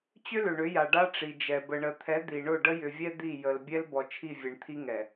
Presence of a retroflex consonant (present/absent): present